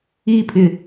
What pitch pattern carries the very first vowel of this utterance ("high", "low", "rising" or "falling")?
high